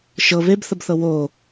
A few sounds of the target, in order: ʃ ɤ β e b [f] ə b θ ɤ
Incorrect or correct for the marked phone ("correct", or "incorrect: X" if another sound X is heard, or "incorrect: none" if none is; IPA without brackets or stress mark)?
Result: incorrect: θ